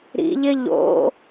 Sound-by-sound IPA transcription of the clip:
ɾ ḭ ʎ ɪ ʎ o̰

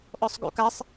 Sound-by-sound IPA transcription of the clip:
ʔ ɔ sˤ ɡ ṵ k a sˤ

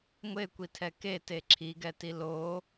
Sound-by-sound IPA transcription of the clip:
ŋʷ e kʷ i tʰ ɛ k e t e ǁʰ i ɡ ɛ t i l o

